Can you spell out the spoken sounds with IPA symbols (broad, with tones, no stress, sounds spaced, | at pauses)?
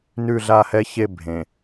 n ʉ˦˨ ɮ a˦˨ h ɛ˦ ç e˦˨ bʱ ẽ˨